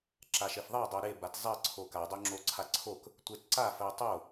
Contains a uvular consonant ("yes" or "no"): no